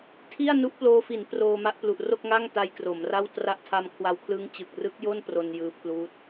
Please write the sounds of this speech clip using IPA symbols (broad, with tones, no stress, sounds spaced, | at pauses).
tʰ i˥˩ a̯ n u˦˥ ʔ p l oː˧ f i˩˦ n p r oː˧ m a˦˥ ʔ p l u˨˩ ʔ r o˥˩ k̚ ŋ a˥˩ ŋ t a˧ j k r o˩˦ m r a˥˩ w t r a˦˥ ʔ tʰ a˧ m kʰ w a˧ w kʰ l ɯː˦˥ ŋ t͡ɕ ɯ˨˩ k̚ r ɯ˦˥ k̚ j o˥˩ n p r o˧ n j ɯː˦˥ pʰ l uː˦˥ t̚